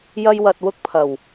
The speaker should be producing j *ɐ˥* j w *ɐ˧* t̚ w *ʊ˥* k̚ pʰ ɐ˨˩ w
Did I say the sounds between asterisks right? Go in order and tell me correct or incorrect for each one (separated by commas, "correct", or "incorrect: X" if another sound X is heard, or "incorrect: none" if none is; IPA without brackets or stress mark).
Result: correct, correct, correct